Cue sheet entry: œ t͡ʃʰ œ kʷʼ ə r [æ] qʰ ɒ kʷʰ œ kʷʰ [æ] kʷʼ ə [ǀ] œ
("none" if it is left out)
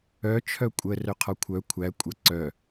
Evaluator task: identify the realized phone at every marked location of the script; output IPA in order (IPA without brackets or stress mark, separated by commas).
œ, æ, ǀ